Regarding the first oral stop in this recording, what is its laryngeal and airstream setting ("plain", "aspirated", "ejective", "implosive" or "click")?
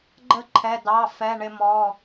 click